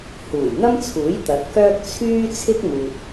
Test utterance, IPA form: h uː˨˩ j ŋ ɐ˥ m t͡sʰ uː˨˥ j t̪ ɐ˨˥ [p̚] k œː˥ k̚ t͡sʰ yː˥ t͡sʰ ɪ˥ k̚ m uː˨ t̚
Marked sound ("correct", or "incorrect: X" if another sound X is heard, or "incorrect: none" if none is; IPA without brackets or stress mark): incorrect: t̚